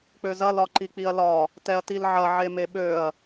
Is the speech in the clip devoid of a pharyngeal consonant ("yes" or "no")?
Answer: no